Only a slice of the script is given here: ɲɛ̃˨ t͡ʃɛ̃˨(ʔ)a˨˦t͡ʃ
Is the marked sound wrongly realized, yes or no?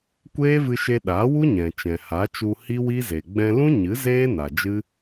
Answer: yes